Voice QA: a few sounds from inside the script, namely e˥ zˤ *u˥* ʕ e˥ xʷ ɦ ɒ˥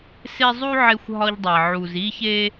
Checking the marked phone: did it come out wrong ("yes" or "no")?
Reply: no